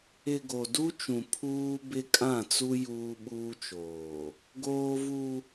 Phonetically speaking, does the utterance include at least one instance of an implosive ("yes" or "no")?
yes